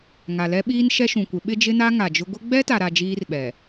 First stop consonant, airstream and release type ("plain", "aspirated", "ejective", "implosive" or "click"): implosive